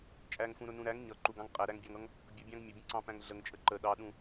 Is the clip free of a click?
no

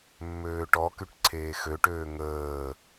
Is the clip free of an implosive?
yes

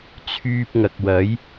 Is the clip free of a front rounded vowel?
no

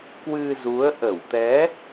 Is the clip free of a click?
yes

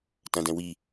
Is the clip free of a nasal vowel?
no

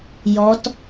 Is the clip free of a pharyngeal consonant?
yes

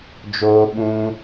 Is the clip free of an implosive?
no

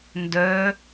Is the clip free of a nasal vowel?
yes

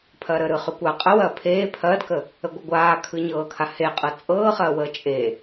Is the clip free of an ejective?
no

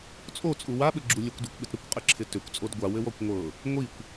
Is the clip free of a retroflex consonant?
yes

